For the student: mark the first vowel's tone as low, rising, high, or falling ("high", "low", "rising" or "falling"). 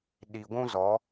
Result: low